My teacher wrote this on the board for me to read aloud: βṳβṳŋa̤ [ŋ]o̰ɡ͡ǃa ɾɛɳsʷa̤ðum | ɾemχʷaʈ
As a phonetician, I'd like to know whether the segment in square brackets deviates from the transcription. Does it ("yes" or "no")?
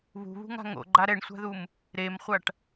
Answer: no